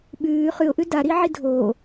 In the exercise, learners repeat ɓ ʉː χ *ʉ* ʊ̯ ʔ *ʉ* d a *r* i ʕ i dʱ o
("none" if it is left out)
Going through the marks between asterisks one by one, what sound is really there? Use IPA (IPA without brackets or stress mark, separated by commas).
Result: ʉ, ʉ, ɾ